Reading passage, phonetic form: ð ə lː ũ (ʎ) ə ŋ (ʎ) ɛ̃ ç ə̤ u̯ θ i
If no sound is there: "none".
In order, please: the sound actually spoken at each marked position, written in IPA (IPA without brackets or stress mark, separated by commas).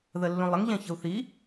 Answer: lˠ, ʎ